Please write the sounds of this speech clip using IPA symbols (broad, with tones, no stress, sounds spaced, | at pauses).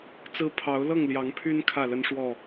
t͡s ɹ̩˦ pʰ ɑ˨˦ ʊ̯ l ɤ˥˨ ŋ l j ɑ˨˦ ŋ pʰ y˦ n kʰ ä˥˨ l ə˦ n ʂ w ɔ˥˨